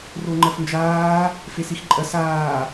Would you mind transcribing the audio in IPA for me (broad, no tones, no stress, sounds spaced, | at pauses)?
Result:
r o ŋ͡ǃ ɐ f n d͡ʒ aː | f e s i x ǃʼ ɐ s aː